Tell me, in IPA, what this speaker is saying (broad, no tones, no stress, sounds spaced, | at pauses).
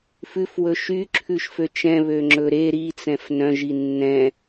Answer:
f ʉ f w ɵ ʃ y ǁʰ ʉ ʃ f ø t͡ʃ ɛ̃ β ø ŋ͡ǁ ɵ ɾ e ɾ i t͡s ɛ̃ f n œ̃ ʒ i nː ɛ̃